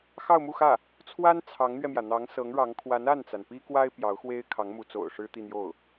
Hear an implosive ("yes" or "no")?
no